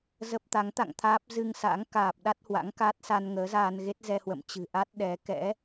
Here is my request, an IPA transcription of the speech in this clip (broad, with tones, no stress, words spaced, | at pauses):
zə˦˥p̚t̪a˨˦ŋ t̪a̰˧˨ŋ t̪ʰaː˦˥p̚ zɨ˧ŋsa̰˧˥ŋ kaː˨˩p̚ ɗa˦˥t̚hwa̰˧˥ŋka˦˥t̚sa˧n ŋəː˨˦zaː˧n ɣe˦˥t̚zɛ˧hwə̰˧˨m t͡ɕɨ̤˨˩ʔa˦˥t̚ɗɛ˨˦ kɛ̰˧˥